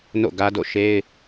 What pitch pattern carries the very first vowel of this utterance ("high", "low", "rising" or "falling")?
falling